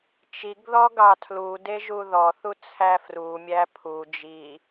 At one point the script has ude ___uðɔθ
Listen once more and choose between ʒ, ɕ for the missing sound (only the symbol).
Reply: ʒ